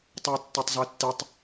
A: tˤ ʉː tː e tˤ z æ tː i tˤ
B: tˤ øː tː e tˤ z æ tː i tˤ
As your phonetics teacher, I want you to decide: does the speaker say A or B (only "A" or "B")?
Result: B